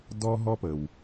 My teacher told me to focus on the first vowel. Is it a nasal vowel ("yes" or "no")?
no